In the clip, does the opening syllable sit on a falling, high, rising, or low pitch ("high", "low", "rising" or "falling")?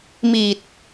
low